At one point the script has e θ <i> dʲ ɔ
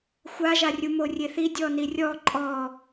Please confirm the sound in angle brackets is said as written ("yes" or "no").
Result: yes